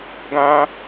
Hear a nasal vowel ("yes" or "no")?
yes